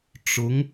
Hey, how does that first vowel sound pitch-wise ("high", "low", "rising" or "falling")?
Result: rising